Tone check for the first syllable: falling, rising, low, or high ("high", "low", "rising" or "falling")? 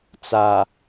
low